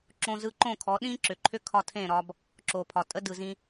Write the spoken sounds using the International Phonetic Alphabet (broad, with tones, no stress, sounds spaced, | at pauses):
ǁ õ˧ z ɯ˧ ǃ õ˦˨ kʰ ɔ˨˦ ɗ ĩ˦ ǁ ʏ˨ ǃʰ ʏ˦ kʰ ɒ˧ tʰ ẽ˦˨ ɾ ɒ˧ b | ǁ o˨ pʰ ɒ˨ tʼ ə˦ d ɯ˨ z ĩ˧